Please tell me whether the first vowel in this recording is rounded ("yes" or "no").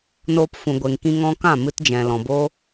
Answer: yes